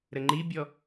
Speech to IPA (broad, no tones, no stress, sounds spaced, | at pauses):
ɾ ə ŋ͡ǃ i bʲ ɔ